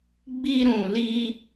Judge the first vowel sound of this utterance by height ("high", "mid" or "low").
high